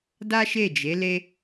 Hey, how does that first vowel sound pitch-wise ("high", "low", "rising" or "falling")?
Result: high